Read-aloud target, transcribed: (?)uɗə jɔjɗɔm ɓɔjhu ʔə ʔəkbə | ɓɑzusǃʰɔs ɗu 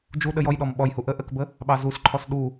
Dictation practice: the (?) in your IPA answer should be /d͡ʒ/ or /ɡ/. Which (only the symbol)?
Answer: d͡ʒ